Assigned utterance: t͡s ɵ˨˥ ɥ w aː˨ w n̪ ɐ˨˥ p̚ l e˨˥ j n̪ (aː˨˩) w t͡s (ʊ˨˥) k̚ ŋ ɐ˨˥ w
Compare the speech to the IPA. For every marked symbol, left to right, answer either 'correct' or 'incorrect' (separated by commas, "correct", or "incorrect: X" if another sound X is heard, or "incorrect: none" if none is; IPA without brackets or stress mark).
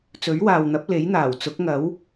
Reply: correct, correct